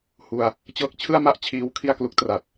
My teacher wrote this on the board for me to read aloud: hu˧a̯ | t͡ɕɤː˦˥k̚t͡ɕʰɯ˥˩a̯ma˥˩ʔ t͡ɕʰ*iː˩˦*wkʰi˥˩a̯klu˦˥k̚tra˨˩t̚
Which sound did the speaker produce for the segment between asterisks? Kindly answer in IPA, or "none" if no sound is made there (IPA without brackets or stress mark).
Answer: iː˧